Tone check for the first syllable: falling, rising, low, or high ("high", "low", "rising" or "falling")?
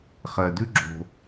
low